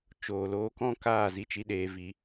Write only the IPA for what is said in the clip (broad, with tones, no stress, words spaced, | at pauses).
t͡ʃoː˨loː˧kɔ̃˦kaː˦˨ zi˧t͡ʃi˧ɗeː˨vi˨